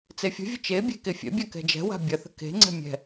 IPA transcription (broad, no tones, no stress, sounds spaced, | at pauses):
t͡s e fʲ ə̤ vʲ ə t͡ʃ e bʲ e̤ k e fʲ ɛ̰ bʲ a k ɛ̤ d͡ʒ ɛ̤ w a̤ bʲ ɐ θ ə̤ k e̤ ŋ͡ǀ ɛ̤ mʲ ɛ̤